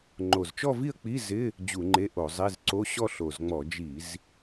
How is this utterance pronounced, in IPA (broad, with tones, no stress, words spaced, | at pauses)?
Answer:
ŋ͡ǃo˨˩zt͡ʃɔ˥˧vi˥˧ə̯k͡pi˧˥˧ zɪ˧˥˧ | d͡ʑu˧˩˧ŋ͡ǃe˧˥˧ʔo˧˩˧zˤe˧˥˧z ǀo˧˥˧ɕɔ˥˧ɬo˨˩zŋ͡mɔ˧˩˧ d͡ʒi˧˩˧z